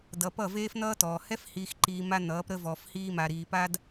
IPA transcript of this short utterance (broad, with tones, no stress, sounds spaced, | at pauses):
d ʌ˨ p ʌ˦˨ v eː˦ f n̪ ʌː˦ t ɔː˨ h ɛ˦ f h iː˨ x ǃ iː˨ m a˦ n̪ ʌː˨˦ p ɾ ə˦ v ɔː˨ f h iː˦ m a˨ ɾ iː˨ p a˦ d